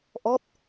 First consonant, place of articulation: glottal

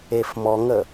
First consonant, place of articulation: labial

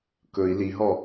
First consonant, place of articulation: velar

